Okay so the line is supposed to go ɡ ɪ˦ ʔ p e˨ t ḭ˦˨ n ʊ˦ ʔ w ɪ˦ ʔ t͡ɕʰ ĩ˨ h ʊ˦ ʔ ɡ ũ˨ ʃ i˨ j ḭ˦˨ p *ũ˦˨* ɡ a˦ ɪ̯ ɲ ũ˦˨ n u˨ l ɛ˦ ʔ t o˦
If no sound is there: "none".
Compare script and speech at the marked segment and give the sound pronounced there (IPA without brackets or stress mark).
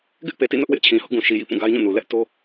ũ˦˨